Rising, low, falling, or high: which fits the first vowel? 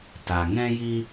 low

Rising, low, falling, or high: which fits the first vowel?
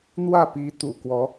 falling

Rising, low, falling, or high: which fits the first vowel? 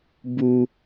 high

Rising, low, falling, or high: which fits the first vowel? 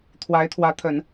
rising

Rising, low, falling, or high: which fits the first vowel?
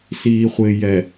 low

